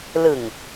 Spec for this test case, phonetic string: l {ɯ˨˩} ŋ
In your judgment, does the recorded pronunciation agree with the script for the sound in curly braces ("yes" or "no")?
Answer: yes